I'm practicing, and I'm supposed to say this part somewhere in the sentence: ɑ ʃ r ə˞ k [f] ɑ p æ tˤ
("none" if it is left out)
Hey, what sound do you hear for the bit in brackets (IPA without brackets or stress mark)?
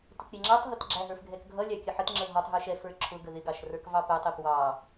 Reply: v